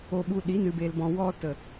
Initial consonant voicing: voiced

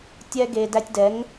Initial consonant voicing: voiceless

